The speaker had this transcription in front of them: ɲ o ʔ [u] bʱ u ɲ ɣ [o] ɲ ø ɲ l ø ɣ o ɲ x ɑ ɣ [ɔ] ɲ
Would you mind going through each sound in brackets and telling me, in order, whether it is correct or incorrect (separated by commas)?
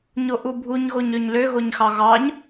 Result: correct, correct, incorrect